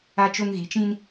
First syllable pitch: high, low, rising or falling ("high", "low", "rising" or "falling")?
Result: high